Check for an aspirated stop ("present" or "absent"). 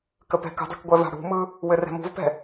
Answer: absent